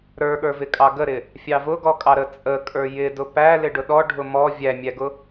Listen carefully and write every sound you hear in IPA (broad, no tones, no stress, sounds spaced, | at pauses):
ɾ ə˞ ɠ ə˞ v ɪ kʼ ɑ ɡ ə ɾ ɪ | fʲ ɑ v ʊ ɡ ɔ kʼ ɑ ɾ ə t͡sʼ ə kʼ ə˞ j ɪ d ʊ p æ l ɪ ɖ ʊ ɗ ɔ ɖʱ ʊ m ɔ vʲ æ mʲ æ ɡ ʊ